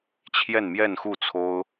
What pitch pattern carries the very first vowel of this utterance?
falling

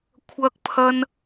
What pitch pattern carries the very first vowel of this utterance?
high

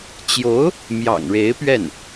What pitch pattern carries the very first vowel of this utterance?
rising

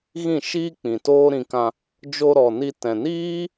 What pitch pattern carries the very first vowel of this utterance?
falling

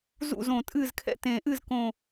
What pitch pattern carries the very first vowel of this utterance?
falling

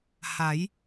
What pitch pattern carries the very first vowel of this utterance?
rising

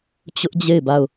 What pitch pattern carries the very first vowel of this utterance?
high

